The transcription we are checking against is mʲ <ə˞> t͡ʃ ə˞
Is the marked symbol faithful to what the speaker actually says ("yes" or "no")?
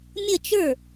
no